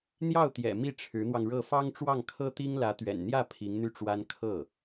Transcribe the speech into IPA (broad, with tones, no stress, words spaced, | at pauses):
n̪jɑ˥˩ʊ̯t̪jɛ̰˨˩ mi˥˩ʈ͡ʂʰɻ̩˧˥n̪wɑ˧ŋɻɤ˥˩ fɑ˥ŋʈ͡ʂwɑ˥˩ŋkʰɤ˥t̪i˥ŋ lä˧˥t̪ɥɛ̰˨˩nn̪jä˥˩ pʰi˧˥ŋn̪y˥˩ʈ͡ʂwa˥n kʰɤ˥˩